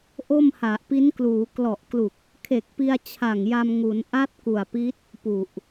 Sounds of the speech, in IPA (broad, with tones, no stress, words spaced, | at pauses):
ʔo˥˩mha˨˩ʔpi˦˥nkluː˩˦ klɔ˨˩ʔklu˨˩k̚ | kʰe˨˩k̚pi˧a̯ t͡ɕʰa˨˩ŋja˧m ŋu˩˦nʔa˦˥t̚ku˨˩a̯pi˦˥t̚ | pu˨˩ʔ